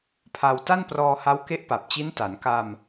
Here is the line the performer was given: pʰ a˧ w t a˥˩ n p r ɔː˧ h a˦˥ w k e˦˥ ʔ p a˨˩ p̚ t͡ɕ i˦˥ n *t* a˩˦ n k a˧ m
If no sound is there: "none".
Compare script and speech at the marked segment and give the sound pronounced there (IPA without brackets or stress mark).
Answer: t